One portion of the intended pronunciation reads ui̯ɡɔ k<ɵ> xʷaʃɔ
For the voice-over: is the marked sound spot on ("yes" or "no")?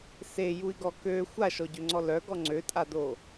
no